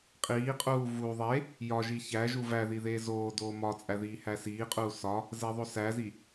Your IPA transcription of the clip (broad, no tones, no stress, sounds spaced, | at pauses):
qʼ iː qʼ uː v u ðˤ e | j ɒ ʒ i ç æ ʒ u v æ ð i ð eː z oː d oː m ɒ t͡sʼ æ ð iː h æ s iː qʼ uː s ɒ | z e ðˤ o s æ z i